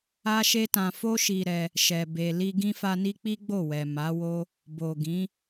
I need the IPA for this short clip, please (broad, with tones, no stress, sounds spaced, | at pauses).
a˦ ʃ e˦ t ã˧ f o˦ ʃ i˧ ɾ ɛ˧ | ʃ ɛ˨ b e˨ l i˧ ɡ ĩ˦ f a˧ n i˦ k͡p i˦ ɡ͡b o˦˨ w ɛ˨ m a˨˦ w o˦ | b o˨ ɡ ĩ˨˦